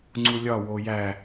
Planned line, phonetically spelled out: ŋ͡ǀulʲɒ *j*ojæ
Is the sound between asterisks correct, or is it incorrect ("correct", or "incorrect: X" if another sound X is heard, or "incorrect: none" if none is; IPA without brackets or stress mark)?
incorrect: w